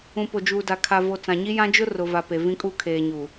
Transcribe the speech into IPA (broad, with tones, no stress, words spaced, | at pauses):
ũ˨po˨d͡ʒuː˨da˨ kʰa˨vo˨ t͡sã˨ɲi˦jã˦ d͡ʒʊ˦rʊ˨va˨ pe˨vĩ˦kʼu˦ kʰeː˨ɲu˨